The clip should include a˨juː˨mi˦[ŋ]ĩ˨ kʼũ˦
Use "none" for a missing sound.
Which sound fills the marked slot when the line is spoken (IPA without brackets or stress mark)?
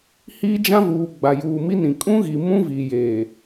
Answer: n